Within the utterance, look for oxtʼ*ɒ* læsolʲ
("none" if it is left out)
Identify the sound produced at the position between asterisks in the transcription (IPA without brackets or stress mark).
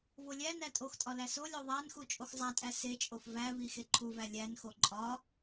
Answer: ɒ